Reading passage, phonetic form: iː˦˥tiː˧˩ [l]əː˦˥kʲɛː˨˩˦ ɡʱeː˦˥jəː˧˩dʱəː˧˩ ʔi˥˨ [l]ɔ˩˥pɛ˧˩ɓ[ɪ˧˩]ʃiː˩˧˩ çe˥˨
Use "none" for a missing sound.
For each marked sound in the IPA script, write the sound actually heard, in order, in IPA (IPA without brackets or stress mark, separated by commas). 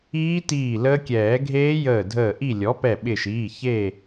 l, lʲ, ɪ˧˩